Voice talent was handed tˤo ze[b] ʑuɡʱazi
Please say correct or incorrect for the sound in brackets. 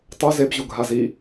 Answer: correct